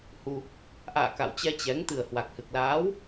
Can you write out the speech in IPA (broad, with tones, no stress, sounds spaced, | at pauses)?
h u˧ | ʔ a̰ː˧˨ k a̰˧˨ w t͡ɕ ɛ˧ t͡ɕ ɛ˨˦ ŋ t̪ ɨ˨˩ ə̯ h w a˨˩ k̚ h ɨ˨˩ k̚ l aː˨˦ w